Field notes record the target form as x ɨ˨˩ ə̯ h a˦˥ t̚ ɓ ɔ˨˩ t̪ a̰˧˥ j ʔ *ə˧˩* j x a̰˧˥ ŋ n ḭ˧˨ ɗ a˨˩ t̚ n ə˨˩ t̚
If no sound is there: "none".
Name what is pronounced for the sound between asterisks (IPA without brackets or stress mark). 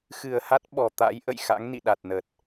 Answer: ə̰˧˨